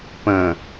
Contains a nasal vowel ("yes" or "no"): yes